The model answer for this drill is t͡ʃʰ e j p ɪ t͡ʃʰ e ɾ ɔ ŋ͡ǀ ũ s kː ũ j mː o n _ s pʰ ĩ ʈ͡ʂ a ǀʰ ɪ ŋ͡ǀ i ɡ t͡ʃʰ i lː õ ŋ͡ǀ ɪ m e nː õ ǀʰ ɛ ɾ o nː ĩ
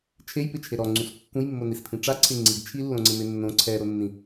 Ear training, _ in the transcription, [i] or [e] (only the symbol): i